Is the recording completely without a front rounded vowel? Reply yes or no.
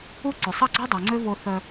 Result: no